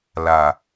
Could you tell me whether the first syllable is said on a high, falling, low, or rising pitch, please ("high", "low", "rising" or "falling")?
low